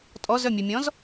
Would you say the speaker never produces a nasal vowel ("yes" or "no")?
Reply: no